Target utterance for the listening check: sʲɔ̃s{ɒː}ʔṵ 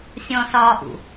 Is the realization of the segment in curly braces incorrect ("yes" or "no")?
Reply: no